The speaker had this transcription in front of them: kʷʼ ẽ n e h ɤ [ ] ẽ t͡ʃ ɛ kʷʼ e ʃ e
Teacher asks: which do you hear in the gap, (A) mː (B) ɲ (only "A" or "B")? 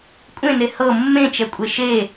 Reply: A